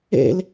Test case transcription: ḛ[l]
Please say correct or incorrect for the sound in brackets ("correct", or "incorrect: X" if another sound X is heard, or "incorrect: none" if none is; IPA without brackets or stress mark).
correct